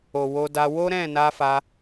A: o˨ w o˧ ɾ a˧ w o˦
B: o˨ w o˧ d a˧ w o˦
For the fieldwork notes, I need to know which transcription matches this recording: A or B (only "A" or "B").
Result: B